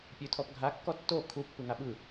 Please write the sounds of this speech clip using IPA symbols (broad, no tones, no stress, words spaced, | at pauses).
pʲʉtʰɔpɡʱa kːɔtːo kʰu pːɯŋaɓɯ